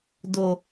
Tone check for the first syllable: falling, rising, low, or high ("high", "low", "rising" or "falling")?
low